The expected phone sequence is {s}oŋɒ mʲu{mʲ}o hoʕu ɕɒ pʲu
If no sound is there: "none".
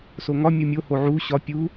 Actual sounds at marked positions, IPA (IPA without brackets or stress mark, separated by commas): s, mʲ